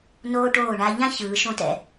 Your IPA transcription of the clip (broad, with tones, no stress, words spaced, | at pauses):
noː˦ʈoː˦˨ɳa˦ ʎã˦ çɯː˨˦ʃõ˦tɛ̰˦